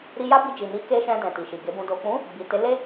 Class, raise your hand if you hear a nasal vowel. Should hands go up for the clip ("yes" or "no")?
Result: yes